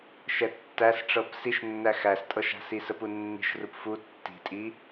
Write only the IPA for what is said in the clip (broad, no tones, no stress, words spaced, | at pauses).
ʃɛtːæsʈ͡ʂɤp siʃnːæ xæstʼɤʃa̤si səpunːi̤ʃrup fu tːi̤tʼi